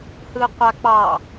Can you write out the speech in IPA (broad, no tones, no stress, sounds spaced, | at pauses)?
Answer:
h ɯ qʷ a k͡p ɑ